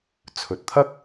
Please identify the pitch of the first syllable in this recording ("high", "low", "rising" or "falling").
low